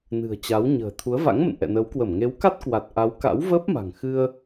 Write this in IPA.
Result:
n ɨ̤˨˩ ə̯ t͡ɕ a˨˦ w ɲ ə̤ː˨˩ t̪ʰ u˨˦ ə̯ v a̰˧˥ ŋ m ə̰˧˨ n ʔ ɛ̰˧˨ n əː˨˦ w k w ə˧˩ m ŋ e˨˦ w k a˦˥ t̚ k w a˨˩ t̚ ʔ a˨˦ w k a̰˧˥ w v əː˦˥ p̚ m a̤˨˩ ŋ x ɨ˧ ə̯

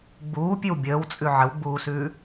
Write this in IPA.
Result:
ɡ͡b uː pʲ ʉ w bʲ əː w t͡sʼ ʉ ʕ ə w ɡ͡b uː s ʉː

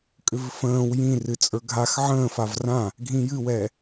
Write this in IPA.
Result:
kʼ ʏ v f ə̃ː w j ĩ r ɨ t͡sʼ ə˞ ɡʱ a x ʕ ə̃ː f a v r ã | ɡʱ ĩ j ɨ w ɛ

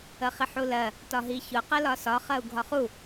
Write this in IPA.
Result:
ə χ i ħ u l ɜ | t ɒ ɦ i ç ʊ q ɜ l ɒ s ɒ χ ɜ u̯ ɡʱ ɒ χ u

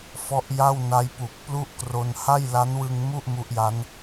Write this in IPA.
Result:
f ɔ˦˥ ʔ j a˥˩ w n a˦˥ j p u˨˩ k̚ p l u˥˩ ʔ k r o˧ n h a˥˩ j l a˦˥ n w ɯ˧ ŋ m u˥˩ ʔ m u˦˥ ʔ j a˦˥ n

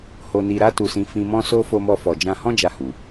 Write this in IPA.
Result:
h o˧ n i˧ ɾ a˦ t u˧ s ĩ˧ f ĩ˧ m ɔ̃˦ s o˦ f o˧ m ɔ˧ f ɔ˨ d͡ʒ ã˧ h ɔ̃˦ d͡ʒ a˦˨ h u˨

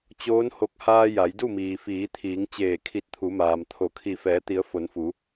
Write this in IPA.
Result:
t͡ɕ oː˧˥ n h o˧ k̚ h aː˧ j a˩˧ j d u˥˨ m iː˩ f iː˩˧ t̪ʰ iː˩˧ ŋ t͡ɕ eː˧˩ kʰ i˧˩ t̚ t̪ʰ u˩˧ m aː˩ m t̪ʰ o˩˧ kʰ i˧˩ f ɛː˩˧ t̪ i˩˧ ə̯ f o˩˧ n f u˩˧

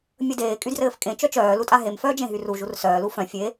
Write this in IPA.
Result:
mʲ ə d eː kʼ y d r ɘː f kʼ ẽ t͡ʃ œ t͡ʃ œː l u tʼ a ɦ e m f œː d͡ʒ ẽ ɦ y r u ʒ u r s œː l u f œ̃ fʲ e

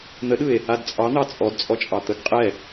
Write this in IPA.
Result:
n̪ ə ɗ ɯ e̯ | a d t͡sʼ ɑ n̪ ɑ t͡sʼ ɔ d t͡sʼ ɔ t͡ʃʼ ɑ t̪ ə ɡ qʼ ɛ

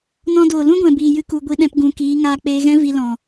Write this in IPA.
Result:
n ɔ̃˧ d oː˨ l ũ˦ ɡʷ ɛ̃˨ b iː˨ j ɨ˧ k u˨ ɡʷ i˧ ɗ ɛ̃˧ p ɡ ũ˨ k iː˨˦ ŋ aː˧ k͡p eː˧ ɣ ɛ̃˦ v i˧ l ɔ̃˨

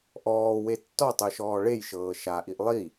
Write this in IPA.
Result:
ʔ ɔː w e tː ɔ tˤ ɯ ʃ ɔː ɭ e j ʃ ɤː ʃ a ʔ i ʔ lˠ i

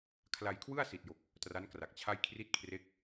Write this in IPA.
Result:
kʰ l a˧ j kʰ w ɯ˥˩ a̯ s i˨˩ t̚ j o˨˩ k̚ | t r a˦˥ n k r a˨˩ k̚ t͡ɕʰ a˥˩ j kʰ r i˥˩ t̚ kʰ r e˦˥ k̚

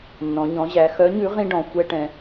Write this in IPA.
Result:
nː ɔ̃˩˧ ɲ ɔ̃˩˧ ʑ æ˩˧ x œ˨˥ ɲ ʉ˨˥ ʁ ĩ˥ ɖ ɔ̃˩˧ xʷ ɛ˥ ʈ ɛ̃˩˧

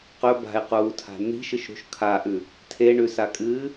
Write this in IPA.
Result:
q ɵ b a̤ e̯ q uː tʰ a̤ n̪ i̤ ʃ ɨ ʃ ɾ ṳ ʃ kʰ a ʔ ʉ | tʰ e ɳ ʉ s a kʼ ɨː

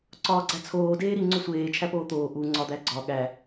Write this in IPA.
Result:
ǀ ɒː ɡ͡ǀ æ t͡sʰ oː d eː ɾ i ŋ͡ǀ o sʷ eː t͡ʃʰ æ p oː t̪ oː ʔ u ŋ͡ǀ ɒ d̪ æ ɡ͡ǀ ɒ ɠ æ

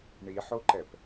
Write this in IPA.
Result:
ɳ i ħ o ǃ ɛ p

